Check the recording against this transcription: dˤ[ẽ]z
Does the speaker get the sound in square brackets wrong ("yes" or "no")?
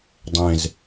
no